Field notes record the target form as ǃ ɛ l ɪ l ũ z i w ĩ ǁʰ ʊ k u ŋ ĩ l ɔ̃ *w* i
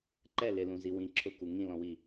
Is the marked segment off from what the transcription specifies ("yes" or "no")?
no